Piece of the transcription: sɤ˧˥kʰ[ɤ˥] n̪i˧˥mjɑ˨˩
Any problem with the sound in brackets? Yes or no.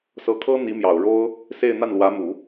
no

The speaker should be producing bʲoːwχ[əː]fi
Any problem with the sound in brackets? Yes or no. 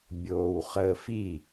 no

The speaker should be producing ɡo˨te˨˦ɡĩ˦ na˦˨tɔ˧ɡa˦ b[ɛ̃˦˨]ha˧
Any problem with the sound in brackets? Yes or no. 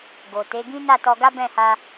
no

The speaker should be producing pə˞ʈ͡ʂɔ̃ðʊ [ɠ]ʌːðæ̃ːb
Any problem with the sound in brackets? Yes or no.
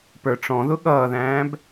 no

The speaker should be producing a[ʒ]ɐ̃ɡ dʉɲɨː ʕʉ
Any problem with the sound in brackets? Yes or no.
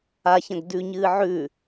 yes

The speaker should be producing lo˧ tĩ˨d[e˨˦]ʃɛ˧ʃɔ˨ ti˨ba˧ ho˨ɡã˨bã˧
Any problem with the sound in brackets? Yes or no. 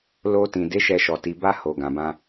no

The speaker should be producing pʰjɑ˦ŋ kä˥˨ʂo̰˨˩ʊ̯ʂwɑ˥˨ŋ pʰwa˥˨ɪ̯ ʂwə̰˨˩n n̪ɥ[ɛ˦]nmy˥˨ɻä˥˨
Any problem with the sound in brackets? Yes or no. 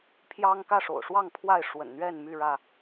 yes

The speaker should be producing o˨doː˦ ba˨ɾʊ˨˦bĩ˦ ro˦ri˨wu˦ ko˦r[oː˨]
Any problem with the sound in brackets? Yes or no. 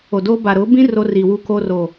no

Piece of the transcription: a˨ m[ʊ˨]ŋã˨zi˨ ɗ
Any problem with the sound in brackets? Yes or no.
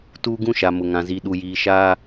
no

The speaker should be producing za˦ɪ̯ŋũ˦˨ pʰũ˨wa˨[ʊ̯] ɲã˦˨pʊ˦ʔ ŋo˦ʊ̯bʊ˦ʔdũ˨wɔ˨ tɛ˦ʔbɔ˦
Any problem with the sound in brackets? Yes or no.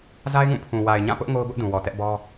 yes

